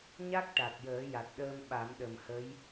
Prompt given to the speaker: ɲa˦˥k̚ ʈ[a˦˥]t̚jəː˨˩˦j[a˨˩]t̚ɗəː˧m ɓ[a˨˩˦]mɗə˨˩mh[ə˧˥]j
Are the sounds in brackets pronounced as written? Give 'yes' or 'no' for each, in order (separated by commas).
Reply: no, yes, yes, yes